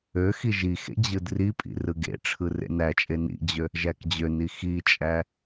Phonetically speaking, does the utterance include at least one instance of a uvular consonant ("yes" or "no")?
no